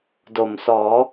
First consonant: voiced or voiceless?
voiced